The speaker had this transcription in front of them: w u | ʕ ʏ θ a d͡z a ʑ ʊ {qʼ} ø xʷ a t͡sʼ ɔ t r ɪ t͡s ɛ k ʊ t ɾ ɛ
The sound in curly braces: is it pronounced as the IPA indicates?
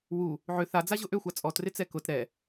no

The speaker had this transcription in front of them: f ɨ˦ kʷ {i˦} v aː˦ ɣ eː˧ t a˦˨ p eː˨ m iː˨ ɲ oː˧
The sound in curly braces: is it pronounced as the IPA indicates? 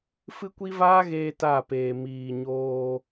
yes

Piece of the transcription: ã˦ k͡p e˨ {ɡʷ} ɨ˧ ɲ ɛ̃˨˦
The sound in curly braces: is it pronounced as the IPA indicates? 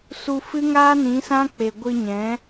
yes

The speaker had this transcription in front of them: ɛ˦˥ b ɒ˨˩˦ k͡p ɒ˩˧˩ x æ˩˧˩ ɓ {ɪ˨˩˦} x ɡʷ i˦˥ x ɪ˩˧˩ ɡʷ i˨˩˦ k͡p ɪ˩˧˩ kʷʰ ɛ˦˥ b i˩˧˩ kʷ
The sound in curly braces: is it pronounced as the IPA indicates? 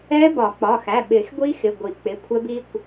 yes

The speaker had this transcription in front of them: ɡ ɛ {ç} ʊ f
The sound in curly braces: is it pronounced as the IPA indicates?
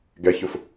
yes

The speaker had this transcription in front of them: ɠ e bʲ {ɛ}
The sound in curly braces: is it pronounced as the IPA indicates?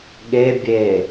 no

